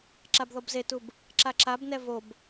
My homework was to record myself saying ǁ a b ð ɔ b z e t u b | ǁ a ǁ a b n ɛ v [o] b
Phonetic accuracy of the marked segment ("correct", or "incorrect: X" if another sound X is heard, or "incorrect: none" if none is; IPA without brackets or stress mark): correct